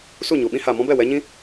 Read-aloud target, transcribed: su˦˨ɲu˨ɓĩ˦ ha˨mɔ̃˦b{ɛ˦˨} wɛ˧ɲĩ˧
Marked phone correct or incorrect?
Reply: correct